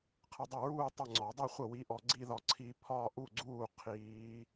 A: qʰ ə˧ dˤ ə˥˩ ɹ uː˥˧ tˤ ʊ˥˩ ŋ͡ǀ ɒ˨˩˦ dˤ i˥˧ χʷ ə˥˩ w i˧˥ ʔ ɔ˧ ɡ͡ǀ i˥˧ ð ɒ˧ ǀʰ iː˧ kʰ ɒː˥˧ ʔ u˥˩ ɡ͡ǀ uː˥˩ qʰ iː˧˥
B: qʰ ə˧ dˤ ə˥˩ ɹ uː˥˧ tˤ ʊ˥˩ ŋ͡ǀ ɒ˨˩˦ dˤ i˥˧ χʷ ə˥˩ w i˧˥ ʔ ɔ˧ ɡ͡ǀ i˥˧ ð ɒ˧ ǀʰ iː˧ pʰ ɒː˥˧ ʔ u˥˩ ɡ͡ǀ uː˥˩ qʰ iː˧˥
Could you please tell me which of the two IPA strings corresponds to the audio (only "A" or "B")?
B